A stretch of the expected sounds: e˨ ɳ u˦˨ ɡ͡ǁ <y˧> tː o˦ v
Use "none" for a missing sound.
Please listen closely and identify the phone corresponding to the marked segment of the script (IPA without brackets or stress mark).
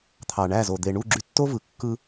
y˧